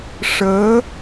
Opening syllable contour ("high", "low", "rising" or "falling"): rising